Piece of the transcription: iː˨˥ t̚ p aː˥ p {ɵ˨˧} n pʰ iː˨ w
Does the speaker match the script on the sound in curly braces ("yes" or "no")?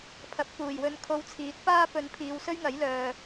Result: yes